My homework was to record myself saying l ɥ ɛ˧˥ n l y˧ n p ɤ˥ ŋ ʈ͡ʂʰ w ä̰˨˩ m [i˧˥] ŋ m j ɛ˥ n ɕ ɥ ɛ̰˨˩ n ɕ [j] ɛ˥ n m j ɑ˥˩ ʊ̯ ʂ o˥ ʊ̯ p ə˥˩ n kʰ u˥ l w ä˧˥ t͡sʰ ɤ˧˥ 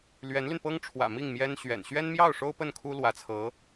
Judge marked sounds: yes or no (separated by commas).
no, no